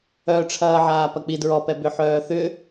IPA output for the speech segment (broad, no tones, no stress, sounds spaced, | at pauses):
œ ʈ͡ʂʰ ɐː ʕ aː p ɐ k͡p i d ɹ ɔ p ɛ b ʏ ħ œː θ ʏ